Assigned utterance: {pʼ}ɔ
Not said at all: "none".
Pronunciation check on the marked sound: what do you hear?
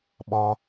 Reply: ɓ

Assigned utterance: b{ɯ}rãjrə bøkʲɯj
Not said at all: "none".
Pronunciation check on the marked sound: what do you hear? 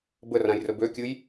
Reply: ə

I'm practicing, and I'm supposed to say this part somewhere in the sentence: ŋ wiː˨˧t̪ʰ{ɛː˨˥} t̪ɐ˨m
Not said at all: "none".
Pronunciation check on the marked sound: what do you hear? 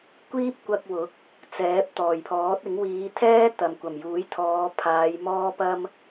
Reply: ɛː˥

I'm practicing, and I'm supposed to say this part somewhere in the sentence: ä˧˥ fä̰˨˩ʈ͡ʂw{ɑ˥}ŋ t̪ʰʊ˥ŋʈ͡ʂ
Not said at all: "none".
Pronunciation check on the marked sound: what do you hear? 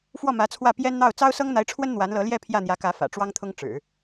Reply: ɑ˥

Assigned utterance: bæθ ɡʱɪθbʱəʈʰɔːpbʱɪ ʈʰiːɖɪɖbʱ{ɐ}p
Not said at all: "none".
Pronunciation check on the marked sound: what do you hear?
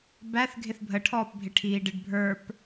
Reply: ə˞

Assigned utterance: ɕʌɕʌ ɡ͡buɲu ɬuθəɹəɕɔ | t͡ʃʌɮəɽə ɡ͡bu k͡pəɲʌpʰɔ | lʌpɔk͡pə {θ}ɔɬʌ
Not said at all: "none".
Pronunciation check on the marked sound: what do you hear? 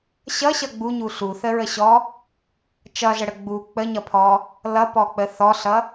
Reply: θ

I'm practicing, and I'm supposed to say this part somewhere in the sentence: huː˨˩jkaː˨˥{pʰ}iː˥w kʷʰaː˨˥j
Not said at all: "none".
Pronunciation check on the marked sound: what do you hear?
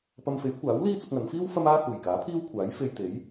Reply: pʰ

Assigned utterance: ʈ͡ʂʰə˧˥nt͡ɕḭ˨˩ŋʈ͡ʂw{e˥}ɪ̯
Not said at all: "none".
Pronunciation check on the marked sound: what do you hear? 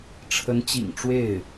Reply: e˥˩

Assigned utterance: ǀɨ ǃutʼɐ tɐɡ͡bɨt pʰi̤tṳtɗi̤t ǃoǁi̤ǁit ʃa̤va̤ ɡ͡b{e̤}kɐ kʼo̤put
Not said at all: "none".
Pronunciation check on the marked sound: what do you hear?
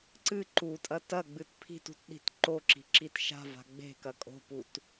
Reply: e̤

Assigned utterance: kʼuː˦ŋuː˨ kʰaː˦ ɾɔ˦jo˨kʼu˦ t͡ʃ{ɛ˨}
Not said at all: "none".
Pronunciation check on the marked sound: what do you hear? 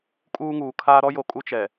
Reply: ɛ˨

